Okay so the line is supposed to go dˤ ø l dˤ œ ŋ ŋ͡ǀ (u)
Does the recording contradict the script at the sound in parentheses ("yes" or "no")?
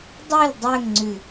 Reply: yes